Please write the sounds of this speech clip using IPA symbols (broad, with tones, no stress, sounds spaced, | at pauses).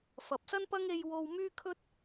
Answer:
f ɐ˨ p̚ s ɐ˥ n p ɐ˥ ŋ e˧ j w o˧ w m yː˥ kʰ ɵ˥ t̚